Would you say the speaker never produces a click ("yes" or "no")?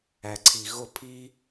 no